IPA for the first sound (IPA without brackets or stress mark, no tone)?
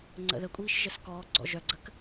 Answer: ŋ͡ǀ